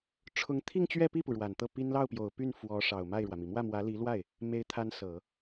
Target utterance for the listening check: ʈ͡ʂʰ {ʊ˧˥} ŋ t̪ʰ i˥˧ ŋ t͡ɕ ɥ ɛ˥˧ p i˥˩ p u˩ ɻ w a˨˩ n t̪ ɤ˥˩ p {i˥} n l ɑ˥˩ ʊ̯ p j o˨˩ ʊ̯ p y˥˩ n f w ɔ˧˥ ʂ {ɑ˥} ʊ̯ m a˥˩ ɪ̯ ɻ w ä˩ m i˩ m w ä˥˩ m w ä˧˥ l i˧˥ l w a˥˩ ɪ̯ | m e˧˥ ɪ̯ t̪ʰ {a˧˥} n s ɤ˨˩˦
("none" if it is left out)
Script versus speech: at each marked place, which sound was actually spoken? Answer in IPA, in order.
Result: ʊ˧˥, i˥, ɑ˨˩, a˧˥

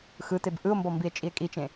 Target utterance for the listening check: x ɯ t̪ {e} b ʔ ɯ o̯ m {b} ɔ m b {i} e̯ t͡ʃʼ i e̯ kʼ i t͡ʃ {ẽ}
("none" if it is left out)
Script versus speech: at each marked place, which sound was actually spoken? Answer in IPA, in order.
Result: e, b, i, ẽ

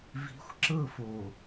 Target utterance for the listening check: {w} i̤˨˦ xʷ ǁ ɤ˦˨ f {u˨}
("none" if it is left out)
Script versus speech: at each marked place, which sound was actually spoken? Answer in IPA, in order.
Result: v, o˨

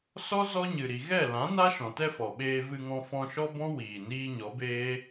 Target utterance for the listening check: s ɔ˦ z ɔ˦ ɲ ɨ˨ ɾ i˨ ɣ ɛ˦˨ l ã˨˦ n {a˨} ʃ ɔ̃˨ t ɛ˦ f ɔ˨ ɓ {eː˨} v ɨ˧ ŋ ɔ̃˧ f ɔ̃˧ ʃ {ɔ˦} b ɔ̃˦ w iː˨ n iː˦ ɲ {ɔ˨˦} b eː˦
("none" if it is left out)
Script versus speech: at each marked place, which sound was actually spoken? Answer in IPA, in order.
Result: a˦, eː˧, ɔ˦, ɔ˨˦

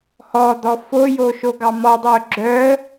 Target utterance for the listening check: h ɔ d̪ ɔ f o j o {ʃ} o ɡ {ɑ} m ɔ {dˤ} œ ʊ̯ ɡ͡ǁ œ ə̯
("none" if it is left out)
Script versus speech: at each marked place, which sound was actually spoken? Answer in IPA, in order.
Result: ʃ, ɑ, dˤ

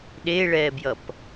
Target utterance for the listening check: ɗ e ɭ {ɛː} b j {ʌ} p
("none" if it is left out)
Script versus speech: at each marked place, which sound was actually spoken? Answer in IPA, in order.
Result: ɛː, ʌ

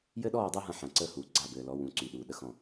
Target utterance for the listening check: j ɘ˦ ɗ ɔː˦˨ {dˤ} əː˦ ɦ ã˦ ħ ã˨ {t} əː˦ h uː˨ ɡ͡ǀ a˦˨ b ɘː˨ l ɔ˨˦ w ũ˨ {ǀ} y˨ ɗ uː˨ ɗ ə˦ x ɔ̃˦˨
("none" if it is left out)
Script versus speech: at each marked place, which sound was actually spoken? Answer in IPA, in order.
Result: dˤ, ǀ, ǀ

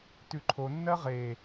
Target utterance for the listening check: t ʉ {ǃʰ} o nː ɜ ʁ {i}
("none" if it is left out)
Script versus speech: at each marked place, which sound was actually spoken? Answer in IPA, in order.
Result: ǃʰ, e

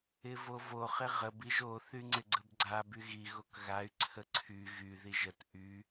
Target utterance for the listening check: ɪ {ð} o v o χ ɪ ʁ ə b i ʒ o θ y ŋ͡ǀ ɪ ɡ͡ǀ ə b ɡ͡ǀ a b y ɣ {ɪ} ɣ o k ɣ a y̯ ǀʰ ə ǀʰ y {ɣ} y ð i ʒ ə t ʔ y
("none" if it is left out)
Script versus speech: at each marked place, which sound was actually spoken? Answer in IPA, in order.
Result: v, i, ɣ

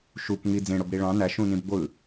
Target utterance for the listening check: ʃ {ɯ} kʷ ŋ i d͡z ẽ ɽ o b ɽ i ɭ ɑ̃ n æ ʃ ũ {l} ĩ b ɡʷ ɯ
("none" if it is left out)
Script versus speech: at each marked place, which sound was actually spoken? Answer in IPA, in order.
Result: u, n

